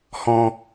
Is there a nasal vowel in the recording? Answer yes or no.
yes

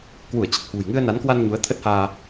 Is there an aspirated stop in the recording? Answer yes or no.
yes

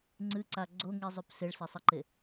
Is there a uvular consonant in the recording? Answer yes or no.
no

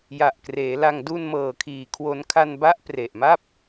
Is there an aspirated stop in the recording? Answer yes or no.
yes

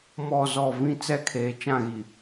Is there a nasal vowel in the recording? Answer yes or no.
yes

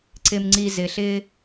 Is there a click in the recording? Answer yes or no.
yes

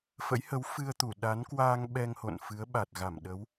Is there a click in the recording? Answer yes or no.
no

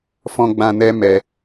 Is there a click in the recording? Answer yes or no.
no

